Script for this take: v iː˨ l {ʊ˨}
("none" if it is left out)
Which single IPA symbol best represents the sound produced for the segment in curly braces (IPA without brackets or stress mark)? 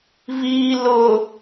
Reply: ʊ˨